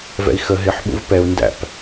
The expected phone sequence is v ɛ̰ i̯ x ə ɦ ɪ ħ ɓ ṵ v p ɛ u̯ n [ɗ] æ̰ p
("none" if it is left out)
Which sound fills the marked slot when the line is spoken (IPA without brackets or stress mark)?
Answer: d